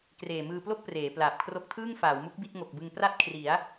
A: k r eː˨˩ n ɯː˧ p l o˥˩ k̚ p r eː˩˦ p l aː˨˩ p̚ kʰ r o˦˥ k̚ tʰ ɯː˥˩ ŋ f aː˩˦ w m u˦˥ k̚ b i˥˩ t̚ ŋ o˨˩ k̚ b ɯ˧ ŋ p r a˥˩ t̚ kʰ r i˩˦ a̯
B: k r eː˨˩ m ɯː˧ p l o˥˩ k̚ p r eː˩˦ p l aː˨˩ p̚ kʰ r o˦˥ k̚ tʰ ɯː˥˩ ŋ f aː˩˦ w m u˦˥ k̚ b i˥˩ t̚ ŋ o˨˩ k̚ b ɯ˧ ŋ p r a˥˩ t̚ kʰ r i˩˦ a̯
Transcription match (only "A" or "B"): B